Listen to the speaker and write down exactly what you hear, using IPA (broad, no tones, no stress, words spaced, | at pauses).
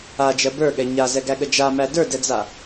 ad͡ʒɜ bə˞ɠɛ ɲazɛɡæɠə d͡ʒamæ də˞dɛd͡za